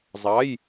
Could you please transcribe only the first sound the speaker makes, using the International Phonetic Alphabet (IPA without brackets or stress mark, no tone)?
zˤ